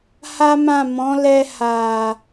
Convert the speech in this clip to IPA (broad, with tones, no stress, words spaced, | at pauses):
ha˦mã˦˨ mɔ̃˨˦lɛ˧ ha˨